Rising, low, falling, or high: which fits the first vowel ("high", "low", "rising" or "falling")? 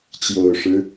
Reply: low